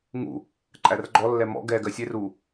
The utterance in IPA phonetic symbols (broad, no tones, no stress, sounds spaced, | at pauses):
ŋ ṵ | ǃʼ æ r ɡ͡ǃ ɔ lː ɛ m ɔ̰ ɡ ɛ ɡ ɜ sʲ e r u